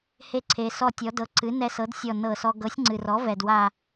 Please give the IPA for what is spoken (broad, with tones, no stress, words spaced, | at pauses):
he˧˩ǀʰe˩ sɔ˧˩tʲɔ˩˧dɤ˩˥ ǀɨ˩˥ nɛ˧sɤ˩˥dsʲɔ˧˩ nɤ˧˩sɔ˧ ɡɤ˩˥sʲŋ͡ǀɨ˩rɔ˩˥ vɛ˩dwa˧˩